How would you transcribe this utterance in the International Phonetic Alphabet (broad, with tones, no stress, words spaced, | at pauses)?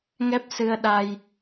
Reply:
ŋɛ˦˥p̚sɨ˧ə̯ɗa˧j